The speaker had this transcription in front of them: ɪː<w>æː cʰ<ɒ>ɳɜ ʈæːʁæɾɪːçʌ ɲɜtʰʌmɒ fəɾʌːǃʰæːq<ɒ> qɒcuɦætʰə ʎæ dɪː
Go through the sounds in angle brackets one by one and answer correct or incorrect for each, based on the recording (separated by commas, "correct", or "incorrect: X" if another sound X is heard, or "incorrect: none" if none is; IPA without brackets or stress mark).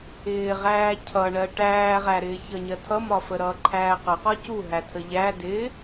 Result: incorrect: ʁ, incorrect: ʌ, incorrect: ʌ